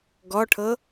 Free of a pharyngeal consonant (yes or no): yes